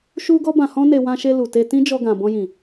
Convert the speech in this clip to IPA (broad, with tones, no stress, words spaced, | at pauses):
ʃu˦ɡɔ˦ bã˧hɔ̃˦ne˧ wã˧ʃe˧ lu˨te˧ tĩ˦d͡ʒɔ˧ɡã˨ bɔ̃˧jĩ˨